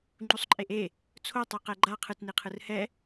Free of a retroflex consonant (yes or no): yes